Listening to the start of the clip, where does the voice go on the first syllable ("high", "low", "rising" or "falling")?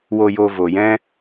low